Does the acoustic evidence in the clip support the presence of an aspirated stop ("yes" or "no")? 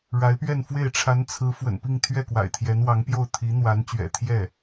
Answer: yes